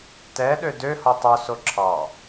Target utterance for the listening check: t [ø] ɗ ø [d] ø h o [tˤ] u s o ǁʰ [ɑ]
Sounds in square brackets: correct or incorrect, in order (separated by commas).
incorrect, correct, correct, correct